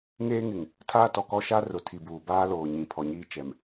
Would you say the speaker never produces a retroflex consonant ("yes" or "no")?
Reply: yes